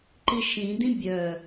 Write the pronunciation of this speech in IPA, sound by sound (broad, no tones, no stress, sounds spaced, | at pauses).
ǃ i ʃ ĩ d ĩ bʲ œ